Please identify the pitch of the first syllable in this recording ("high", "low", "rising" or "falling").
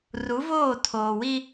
rising